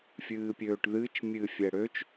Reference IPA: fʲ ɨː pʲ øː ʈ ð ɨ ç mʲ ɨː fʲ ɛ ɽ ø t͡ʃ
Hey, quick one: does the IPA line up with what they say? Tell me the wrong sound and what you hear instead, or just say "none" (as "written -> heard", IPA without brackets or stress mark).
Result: ç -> t͡ʃ